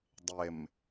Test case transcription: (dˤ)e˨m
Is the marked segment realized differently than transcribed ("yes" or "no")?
no